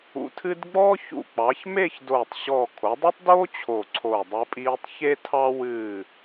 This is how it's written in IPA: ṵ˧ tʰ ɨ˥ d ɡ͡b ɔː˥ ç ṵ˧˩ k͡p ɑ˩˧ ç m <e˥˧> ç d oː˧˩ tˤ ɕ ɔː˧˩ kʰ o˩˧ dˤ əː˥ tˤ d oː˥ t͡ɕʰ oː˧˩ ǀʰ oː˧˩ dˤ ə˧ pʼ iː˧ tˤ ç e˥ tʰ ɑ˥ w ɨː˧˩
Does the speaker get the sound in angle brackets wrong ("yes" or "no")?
no